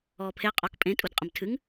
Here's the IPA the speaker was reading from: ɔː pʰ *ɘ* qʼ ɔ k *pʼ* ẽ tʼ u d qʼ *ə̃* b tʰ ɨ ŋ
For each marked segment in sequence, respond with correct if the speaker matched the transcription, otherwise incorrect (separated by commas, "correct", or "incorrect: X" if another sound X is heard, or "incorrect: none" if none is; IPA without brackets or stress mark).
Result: incorrect: e, correct, correct